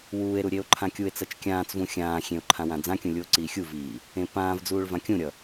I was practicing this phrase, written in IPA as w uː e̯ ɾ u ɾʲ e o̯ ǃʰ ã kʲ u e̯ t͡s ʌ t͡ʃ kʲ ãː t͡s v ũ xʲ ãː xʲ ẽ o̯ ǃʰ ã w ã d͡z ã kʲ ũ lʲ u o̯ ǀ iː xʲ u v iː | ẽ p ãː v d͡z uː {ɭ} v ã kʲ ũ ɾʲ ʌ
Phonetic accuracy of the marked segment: correct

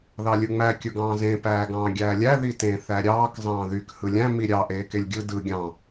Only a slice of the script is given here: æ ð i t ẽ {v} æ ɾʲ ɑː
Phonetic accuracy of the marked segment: incorrect: θ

